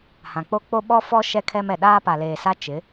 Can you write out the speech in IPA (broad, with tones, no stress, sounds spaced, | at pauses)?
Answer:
h ã˨ k͡p o˦ k͡p o˦ ɓ ɔ˦ f ɔ˦ ʃ ɛ˦ kʰ ɛ˦ m ɛ˨ ɗ aː˦ p a˨ l eː˨ s a˦ t͡ʃ ɪ˨˦